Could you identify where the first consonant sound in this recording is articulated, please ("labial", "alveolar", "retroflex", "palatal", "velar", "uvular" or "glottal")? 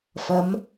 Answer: labial